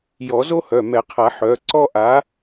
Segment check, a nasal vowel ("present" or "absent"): absent